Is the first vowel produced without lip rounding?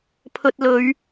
no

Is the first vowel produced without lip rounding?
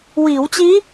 yes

